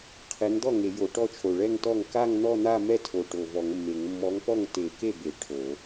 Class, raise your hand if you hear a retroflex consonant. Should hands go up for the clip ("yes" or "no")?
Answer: yes